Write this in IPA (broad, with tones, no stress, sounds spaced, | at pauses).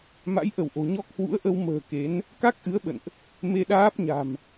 m a̰˧˥ j ʔ ə˧˩ w ʔ o̤˨˩ ɲ ɔ˦˥ k̚ h w ṵ˧˥ ə̯ ʔ ə˧ w m ə̤ː˨˩ k e˨˦ n | k a˦˥ k̚ ʔ ɨ˨˦ ə̯ ɓ ə̰˧˨ n ʔ | m e˧ ɗ aː˦˥ p̚ ɲ a̤˨˩ m